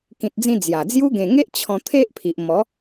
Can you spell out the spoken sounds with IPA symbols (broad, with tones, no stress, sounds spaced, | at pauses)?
k ĩ˨ t̚ d͡z ĩ˧ d͡z j a˨˩ d͡z j u˦ ɡ ẽ˨˩ ŋ e˦ ʔ t͡ɕʰ ɔ̃˧ t̪ʰ e˦ ʔ pʰ i˨ ʔ m ɔ˨˦